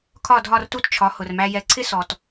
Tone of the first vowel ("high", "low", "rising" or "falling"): falling